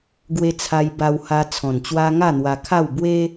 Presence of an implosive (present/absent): absent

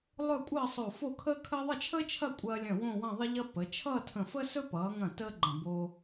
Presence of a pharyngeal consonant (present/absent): absent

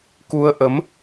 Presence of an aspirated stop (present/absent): absent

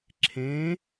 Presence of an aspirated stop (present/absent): present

